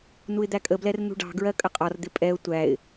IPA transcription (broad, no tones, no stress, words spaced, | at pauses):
nuɪ̯d̪ækʼəblɛr nṳɖɑ̤ɡɹɜ kʼəqʼɒrd̪ɪ pʼɛʊ̯ tʷæɪ̯